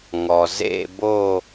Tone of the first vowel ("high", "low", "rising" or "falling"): low